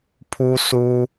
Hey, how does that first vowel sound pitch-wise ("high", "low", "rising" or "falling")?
high